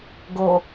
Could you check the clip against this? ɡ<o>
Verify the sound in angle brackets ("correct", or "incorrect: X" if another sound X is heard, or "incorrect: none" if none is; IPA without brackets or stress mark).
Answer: correct